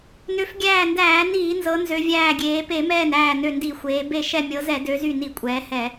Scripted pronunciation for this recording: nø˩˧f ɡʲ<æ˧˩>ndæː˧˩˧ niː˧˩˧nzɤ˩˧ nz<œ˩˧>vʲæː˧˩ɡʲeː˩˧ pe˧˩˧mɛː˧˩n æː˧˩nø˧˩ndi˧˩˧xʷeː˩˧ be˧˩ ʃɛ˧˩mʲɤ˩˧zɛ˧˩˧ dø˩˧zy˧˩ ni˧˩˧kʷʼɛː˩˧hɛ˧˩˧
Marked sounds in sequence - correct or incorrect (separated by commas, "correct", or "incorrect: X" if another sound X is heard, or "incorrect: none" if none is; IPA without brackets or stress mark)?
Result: incorrect: æː˧˩, incorrect: ø˩˧